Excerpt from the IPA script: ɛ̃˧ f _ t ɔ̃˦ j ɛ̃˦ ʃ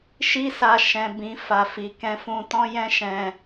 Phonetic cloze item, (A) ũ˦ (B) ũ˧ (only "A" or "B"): B